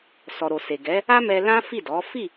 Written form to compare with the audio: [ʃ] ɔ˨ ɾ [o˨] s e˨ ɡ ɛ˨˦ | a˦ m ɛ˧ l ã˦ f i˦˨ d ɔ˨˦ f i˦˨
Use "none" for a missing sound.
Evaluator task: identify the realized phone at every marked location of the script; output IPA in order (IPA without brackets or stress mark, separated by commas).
s, o˨